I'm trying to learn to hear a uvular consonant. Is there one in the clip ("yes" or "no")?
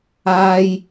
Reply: no